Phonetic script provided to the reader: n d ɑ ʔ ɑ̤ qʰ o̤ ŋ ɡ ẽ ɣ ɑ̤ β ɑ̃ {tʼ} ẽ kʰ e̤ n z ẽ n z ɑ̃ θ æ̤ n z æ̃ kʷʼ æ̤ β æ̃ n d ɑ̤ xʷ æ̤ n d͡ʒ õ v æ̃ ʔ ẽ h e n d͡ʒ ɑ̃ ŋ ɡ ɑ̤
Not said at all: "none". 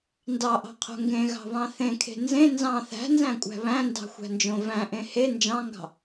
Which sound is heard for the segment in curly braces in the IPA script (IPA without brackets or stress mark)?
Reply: θ